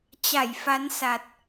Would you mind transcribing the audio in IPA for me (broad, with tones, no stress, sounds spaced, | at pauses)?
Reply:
t͡ɕ a˧˩ j f a˨˦ n s a˨˩ t̚